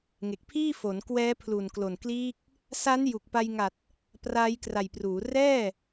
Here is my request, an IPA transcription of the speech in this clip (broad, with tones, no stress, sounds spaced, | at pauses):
ŋ e˨˩ k̚ pʰ iː˥˩ f o˩˦ n k w ɛː˦˥ pʰ l u˨˩ n k l o˨˩ n k l iː˦˥ k̚ | s a˦˥ n j u˨˩ k̚ p a˧ j ŋ a˨˩ t̚ | p r aː˦˥ j k r a˨˩ j p r uː˩˦ r ɛː˥˩